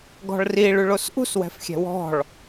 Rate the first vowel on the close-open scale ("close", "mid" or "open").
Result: mid